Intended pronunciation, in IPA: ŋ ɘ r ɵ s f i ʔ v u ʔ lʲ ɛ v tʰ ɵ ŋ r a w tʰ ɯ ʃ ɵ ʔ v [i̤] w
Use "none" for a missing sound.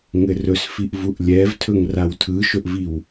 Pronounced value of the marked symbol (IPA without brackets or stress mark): i